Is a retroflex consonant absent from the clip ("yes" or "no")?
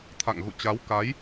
yes